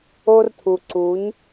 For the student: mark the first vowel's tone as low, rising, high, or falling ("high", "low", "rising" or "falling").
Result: high